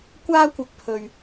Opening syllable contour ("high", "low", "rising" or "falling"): high